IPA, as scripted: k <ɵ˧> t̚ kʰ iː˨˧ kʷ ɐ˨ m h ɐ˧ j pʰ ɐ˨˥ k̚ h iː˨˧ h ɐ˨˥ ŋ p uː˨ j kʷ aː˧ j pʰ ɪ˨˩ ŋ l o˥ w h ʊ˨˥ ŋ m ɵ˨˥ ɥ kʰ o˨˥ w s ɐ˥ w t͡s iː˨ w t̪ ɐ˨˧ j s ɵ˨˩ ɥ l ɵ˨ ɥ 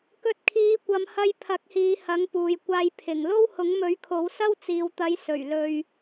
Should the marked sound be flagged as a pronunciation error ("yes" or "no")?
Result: no